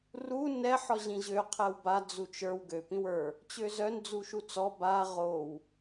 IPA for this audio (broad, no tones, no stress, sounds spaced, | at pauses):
r u n ɛ ħ ɔ ʑ ĩ ʑ ø qʰ ɛ w b a d͡z u t͡ʃ ə˞ w ɡ ø p ĩ w ə˞ | t͡ɕ ø z œ n d͡z u ʃ u t͡s ɔ b a ʁ o w